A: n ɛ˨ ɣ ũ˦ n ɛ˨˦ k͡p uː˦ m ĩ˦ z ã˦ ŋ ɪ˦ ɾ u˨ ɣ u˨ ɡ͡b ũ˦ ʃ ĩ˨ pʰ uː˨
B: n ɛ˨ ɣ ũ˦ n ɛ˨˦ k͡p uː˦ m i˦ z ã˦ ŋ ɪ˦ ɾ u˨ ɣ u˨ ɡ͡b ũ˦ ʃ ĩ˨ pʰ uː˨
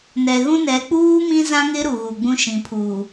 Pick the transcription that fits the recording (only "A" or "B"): A